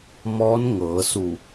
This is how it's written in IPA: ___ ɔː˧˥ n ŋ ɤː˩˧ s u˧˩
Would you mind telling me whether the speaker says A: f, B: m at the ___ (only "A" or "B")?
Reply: B